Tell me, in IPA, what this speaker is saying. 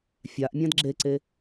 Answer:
fʲaʔ mʲãdɡ͡ǁeǀe

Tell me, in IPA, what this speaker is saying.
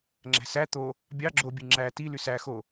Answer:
ŋ͡ǁæ̤sæ t̪o | bʲɑ ɡ͡ǁobʲɯ ŋ͡ǁæ tily sæ xo

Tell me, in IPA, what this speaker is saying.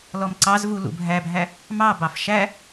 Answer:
lɔmǀɑzvu lṵbʱæbʱæ | mɑbɑf ʃæ

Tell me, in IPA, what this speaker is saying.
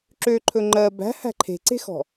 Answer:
ǁøǃʰɵ ŋ͡ǃɜ bæ̤hæ̤ ǃʰe̤ǀe̤xɔ̤

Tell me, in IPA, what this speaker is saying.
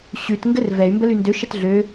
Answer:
ɕʉt ŋɡɘrvɛy̯ mbəlyndø ʃətɮø

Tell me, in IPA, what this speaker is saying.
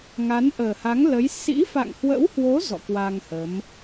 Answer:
ŋa˨˦nʔəː˨˩ha˨˦ŋ lə˨˦j sḭ˧˥fa̰˧˨ŋhwə̰˧˥whwo˨˦ zɔ̰˧˨kwa˧ŋhə˨˦m

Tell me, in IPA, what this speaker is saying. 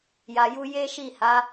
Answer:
ja˧ju˦ je˦ʃi˦˨ha˨˦

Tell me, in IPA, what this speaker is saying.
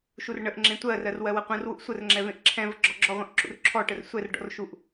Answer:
ʃurɳəʔŋ͡ǁẽ tʷɜrɜr wɜwɐqʷɛ̃rwuʔ sʷərŋ͡ǁɛ vẽʔǁʰɛ̃və ɡ͡ǁɔɡ͡ǁɔʁʷẽʔ ǁṵrǁʰɔʈər sʷɛrɖɔ̰r ʃuʔ

